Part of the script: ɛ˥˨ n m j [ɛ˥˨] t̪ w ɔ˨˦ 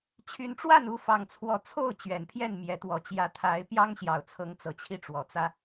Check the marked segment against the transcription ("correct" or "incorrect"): incorrect